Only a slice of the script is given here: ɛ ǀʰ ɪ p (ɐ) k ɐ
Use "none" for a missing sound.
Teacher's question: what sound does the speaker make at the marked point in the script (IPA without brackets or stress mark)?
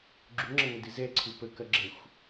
ə